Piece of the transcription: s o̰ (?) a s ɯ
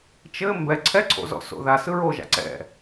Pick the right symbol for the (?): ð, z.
ð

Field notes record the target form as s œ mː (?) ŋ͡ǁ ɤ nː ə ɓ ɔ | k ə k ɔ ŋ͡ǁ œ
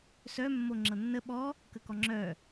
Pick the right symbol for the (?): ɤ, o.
o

